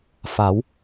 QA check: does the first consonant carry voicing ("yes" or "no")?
no